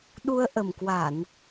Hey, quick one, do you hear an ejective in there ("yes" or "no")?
no